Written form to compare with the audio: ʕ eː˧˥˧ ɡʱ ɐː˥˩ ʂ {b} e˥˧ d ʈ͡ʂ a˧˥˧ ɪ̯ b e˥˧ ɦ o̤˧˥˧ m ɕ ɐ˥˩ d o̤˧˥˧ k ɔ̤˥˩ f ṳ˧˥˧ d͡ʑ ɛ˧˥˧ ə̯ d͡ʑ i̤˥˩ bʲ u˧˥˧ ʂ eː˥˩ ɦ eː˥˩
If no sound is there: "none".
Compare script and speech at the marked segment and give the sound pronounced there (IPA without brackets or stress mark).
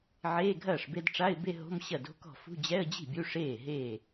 b